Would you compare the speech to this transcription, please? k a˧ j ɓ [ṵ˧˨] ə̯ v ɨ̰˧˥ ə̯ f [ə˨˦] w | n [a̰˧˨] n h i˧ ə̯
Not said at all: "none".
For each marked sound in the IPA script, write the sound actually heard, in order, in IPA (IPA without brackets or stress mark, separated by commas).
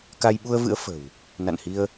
u˧, ə̤˨˩, a̰˧˨